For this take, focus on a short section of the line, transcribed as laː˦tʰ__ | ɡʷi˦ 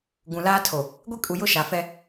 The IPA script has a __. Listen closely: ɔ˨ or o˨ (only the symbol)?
o˨